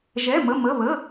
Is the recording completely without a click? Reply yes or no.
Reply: yes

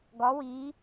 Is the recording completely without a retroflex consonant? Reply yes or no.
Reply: yes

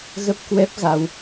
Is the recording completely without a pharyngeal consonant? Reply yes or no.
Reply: yes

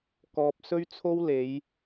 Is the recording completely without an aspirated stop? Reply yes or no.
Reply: no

